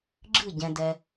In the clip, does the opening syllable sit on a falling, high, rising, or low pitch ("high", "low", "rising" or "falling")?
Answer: falling